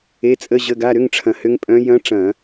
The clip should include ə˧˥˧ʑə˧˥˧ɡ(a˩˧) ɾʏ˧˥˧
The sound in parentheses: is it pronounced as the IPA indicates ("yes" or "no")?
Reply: no